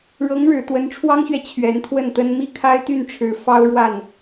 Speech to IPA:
ɻ ɤ˧˥ ŋ ɻ ɻ̩˨˩ t̪ w ə˧˥ n ʈ͡ʂʰ w ɑ˥ ŋ ɕ ɥ ɛ˨ t͡ɕʰ ɥ ɛ˧˥ n t̪ʰ w ə˥˩ n t̪ ə˥ n m i˥ kʰ a˥ ɪ̯ t̪ y˥˩ n ʈ͡ʂʰ ɻ̩˧˥ f ɑ˥ ʊ̯ ɻ w a˥˩ n

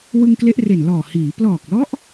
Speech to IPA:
w ɯ˧ ŋ k l e˦˥ ʔ r e˨˩ n l ɔː˨˩ h iː˩˦ p l ɔː˨˩ k̚ l ɔ˦˥ ʔ

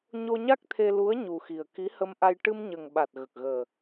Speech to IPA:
ɲ o˧ ɲ a˦˥ k̚ t̪ʰ e˧ l u˧˥ ə̯ ɲ u˨˩ x i˨˩ ə̯ k i˧˥ h ə˧ m ʔ a˧ j ʈ ɨ˧ m ɲ ə˨˩ ŋ ɓ a˨˩ t̚ ɣ ə˨˩ k̚ ɣ əː˨˩

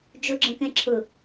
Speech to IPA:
d͡ʒ ʊ ɡ͡ǁ ə̃ k ɛ̃ ǁʰ ʊ

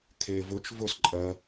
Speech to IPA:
kʰ eː v ɵ t͡ʃ v ɵ s ǃʼ ɜ

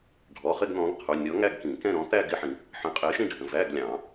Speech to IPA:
ɖʱ ɔ˩˧˩ χ ɪ˥˧ ɡ n̪ ɔ̃˨˥ ɡ qʰ u˩˧˩ nʲ ɔ˨˥ ŋ æ˥˧ ɡ k ĩ˨˩˦ k ɛ̃˥˧ ɾ ɔ̃˨˥ t̪ æ˥˧ ɡ ɪ˧˥˧ ħ ĩ˨˩˦ | ħ ə̃˨˥ qʼ ɪː˨˥ ʃ ĩ˥˧ ɖʱ ə̃˩˧˩ v æ˧˥˧ ɡ lʲ ɑ̃ː˨˩˦

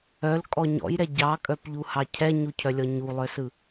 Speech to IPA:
œ l kʼ ɔ ɲ ɔ̰ j ɾ ɛ ɟ ɑ kʼ œ p ʎ u h ɑ cʰ ɛ ɲ u cʰ œ lʲ ɔ ɲ u lˠ œ s ɯ

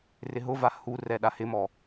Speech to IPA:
r ɪ ɦ ʊ v a h u r ɛ ɗ a h ɪ m ɔ

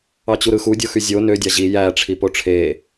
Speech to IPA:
ɑ t͡ɕ u ɾ ɯ x u dʲ o x y zʲ o n ø dʲ ɑ ʑ i j æ ʈ͡ʂʰ i p o ʈ͡ʂʰ e

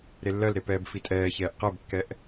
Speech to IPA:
ɾ e lː ɜ l ɾ e p ɛː b f i tʼ ɛː ç ɛː ʔ q ɛ b kː ɛ ʔ

